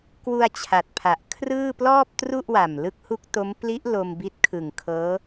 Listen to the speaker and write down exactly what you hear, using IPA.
kwu˧a̯ t͡ɕʰa˨˩t̚pʰa˨˩ʔ kʰrɯː˥˩ plɔː˥˩p̚tru˥˩ʔwa˨˩m lɯ˦˥k̚hu˦˥k̚to˦˥m pli˦˥ʔ lo˧mbi˦˥t̚kʰɯ˨˩ŋ kʰɤː˦˥

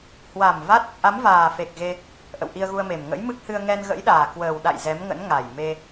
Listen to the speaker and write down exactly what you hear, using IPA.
hwa˨˩m va˦˥t̚ | ʔa˨˦m vaː˨˩fe˨˩k̚ɣe˧ | ʔə̰˧˨wʔi˧ə̯ɣu˧ə̯me˨˩m ŋə̰˧˥jmɨ˦˥k̚hɨ˧ə̯ ŋɛ˧nɣə̰˧˥jɗaː˨˩ kwəː˨˩wɗa̰˧˨j zɛ˨˦mŋə̰˧˥n ŋa˨˩jme˧

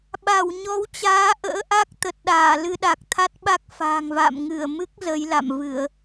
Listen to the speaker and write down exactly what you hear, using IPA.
ɓa˧˩w ɲɔ˨˦wt͡ɕaː˨˦ʔə̰ː˧˥ʔa˦˥k̚ t̪ə˨˩t̚ɗaː˧˩lɨ˧ ɗa˨˩k̚t̪ʰa˦˥t̚ɓa˦˥k̚ fa̤ː˨˩ŋva̰ː˧˨m ŋɨ˧˩ə̯ mɨ˦˥k̚ zə˨˦jla̰˧˨mvɨ˧˩˨ə̯

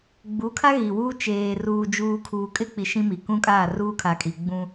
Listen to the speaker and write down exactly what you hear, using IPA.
ɡ͡bu˨˦kʰa˦ ɣi˨wuː˦ t͡ʃeː˨ ruː˨d͡ʒuː˨ kʰuː˨kʼɪ˦k͡pi˨ ʃĩ˦mi˨ kũ˦kʼaː˦˨ruː˦kʰa˨ kʼi˨ ɡ͡bũ˦

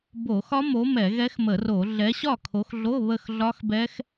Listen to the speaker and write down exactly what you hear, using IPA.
bo˧˩˧xɒ˦˥mo˨˦ mɛ˧˩˧ɣɛ˦˥xmə˧˩˧ro˧˩˧ ɮɛ˨˦ɕɒ˥˨kʰo˨˦xɮo˧˥˧ βə˥˨xɮɒ˦˥xbɛ˦˥x

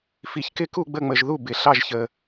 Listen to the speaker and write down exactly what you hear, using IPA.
fi˨çkɪ˥˨ku˥˨ ɡ͡bə˥˨ŋ͡mə˨ʒðu˥˨ bɪ˨ɬɑ˥˨ʒçə˨

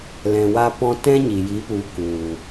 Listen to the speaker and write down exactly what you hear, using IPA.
lɛ̃˨wa˧pɔ̃˧ tɛ̃˦ɲi˨ji˨˦pu˨˦ ku˨

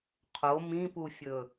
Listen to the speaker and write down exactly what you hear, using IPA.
qʰo mĩpufʲɵ

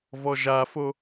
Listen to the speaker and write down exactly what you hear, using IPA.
vɔʒafo

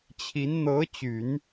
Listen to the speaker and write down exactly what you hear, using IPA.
t͡ɕʰi˧˥n n̪ɤ˧˥t͡ɕy˨˩˦n

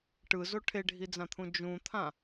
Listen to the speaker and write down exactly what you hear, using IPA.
ʈɯzo ʈʰeɖʱid͡zãt̪ʰũ d͡ʒũt̪ʰã

